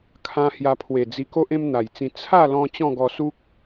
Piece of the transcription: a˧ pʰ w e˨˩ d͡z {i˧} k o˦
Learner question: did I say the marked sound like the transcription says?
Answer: yes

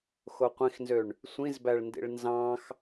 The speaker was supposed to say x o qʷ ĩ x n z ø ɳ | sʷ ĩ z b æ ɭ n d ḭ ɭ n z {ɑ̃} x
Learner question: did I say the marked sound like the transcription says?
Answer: yes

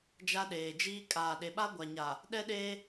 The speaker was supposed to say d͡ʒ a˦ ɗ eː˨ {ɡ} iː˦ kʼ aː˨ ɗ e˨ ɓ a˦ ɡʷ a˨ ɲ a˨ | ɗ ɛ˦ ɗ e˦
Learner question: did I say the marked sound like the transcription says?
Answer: no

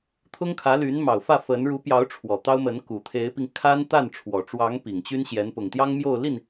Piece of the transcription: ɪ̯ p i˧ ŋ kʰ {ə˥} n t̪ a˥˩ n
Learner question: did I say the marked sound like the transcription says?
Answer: no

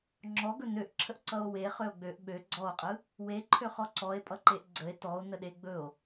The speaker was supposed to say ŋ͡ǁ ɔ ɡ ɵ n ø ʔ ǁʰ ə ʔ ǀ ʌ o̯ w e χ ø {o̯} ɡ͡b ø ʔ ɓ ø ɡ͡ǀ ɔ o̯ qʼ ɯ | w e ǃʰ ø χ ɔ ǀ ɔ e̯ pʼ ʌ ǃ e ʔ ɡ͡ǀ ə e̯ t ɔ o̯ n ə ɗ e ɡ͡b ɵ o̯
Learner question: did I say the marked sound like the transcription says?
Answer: yes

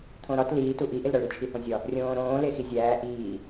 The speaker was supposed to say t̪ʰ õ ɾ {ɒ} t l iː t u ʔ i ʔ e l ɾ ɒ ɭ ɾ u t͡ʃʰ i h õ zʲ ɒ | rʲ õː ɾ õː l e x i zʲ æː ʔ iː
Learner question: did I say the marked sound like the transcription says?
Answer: yes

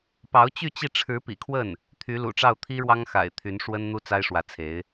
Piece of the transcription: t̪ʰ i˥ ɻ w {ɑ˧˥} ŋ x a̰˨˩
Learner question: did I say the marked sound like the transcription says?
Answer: no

